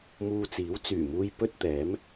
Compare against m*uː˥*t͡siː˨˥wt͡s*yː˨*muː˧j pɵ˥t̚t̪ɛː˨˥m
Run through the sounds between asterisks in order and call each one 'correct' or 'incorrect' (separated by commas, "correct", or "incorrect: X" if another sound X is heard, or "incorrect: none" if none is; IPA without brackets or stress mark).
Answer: incorrect: uː˧, incorrect: yː˨˩